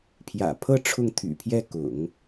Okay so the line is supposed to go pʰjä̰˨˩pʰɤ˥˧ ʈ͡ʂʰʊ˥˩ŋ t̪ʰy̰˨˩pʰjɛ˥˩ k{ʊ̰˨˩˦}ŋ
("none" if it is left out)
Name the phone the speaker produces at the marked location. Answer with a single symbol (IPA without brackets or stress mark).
ʊ̰˨˩˦